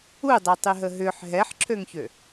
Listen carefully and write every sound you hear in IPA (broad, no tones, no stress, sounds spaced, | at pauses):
u dˤ ɛ tˤ y ɦ ə ɦ ʏ ħ ɦ ɛ ħ ǁʰ ø ŋ ç ø